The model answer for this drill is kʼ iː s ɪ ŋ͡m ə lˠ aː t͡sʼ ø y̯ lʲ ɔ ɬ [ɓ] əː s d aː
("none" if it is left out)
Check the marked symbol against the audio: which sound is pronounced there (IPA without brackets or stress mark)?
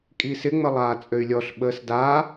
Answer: ɓ